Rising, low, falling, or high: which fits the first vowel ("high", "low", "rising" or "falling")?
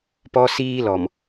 high